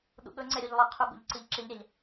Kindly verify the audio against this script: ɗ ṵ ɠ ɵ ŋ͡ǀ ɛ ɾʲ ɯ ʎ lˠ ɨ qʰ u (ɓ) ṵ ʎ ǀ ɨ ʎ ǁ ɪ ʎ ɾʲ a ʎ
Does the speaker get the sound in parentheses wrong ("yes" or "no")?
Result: yes